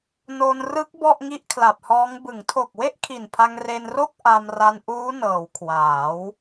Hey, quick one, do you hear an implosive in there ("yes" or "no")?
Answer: no